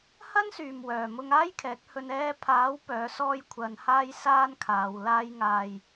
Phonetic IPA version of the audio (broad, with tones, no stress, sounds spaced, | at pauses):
h ɐ˥ n s yː˨ m w œː˨˩ m ʊ˧ ŋ aː˥ j kʰ ɛː˨˥ k̚ h ɵ˧ n ɛː˧ pʰ aː˨˥ w p œː˨˥ s ɔː˥ j kʷʰ ɐ˧ n h aː˥ j s aː˥ n kʰ aː˨˧ w l aː˥ j ŋ aː˧ j